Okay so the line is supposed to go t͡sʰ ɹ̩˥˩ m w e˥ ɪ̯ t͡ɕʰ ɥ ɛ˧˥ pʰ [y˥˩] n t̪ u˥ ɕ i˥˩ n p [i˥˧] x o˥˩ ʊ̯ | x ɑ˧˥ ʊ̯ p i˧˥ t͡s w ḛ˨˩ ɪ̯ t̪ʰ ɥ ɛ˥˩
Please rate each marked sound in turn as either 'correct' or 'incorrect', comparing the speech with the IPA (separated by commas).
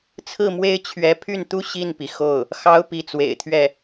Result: correct, incorrect